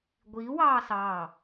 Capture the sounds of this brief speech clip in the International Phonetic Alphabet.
ɡʷ iː w ɑː s ɑː

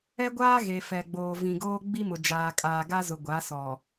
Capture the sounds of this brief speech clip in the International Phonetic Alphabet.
ɛ˦ ɡʷ aː˦ ɣ e˨ f ɛ˨ ɡ͡b oː˨ v ĩ˨ ɡ oː˦ ɡ͡b i˦ m ʊ˨ d͡ʒ aː˨ kʼ aː˨ ɡ a˦ z ʊ˨ ɡʷ a˨˦ s ɔ˨

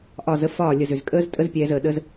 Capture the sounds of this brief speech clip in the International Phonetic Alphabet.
ʔ ɒ˦˨ z ə˦ f ɒː˦˨ lʲ ə˨ z ʏ˨ z kʼ əː˦ z tʼ ə˦ z pʲ ɛː˧ z əː˨ ɗ ə˦ z

